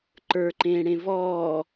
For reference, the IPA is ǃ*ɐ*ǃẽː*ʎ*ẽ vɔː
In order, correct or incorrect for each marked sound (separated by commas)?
incorrect, incorrect